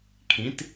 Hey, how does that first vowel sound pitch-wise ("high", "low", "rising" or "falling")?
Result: rising